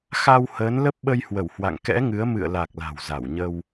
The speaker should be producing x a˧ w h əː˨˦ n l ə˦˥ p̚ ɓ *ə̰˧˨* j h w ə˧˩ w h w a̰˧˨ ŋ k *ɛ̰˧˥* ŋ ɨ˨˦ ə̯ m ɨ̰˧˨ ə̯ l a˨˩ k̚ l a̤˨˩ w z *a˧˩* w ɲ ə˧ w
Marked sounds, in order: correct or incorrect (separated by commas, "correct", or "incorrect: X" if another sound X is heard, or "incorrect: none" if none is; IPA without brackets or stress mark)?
incorrect: ə˧, correct, correct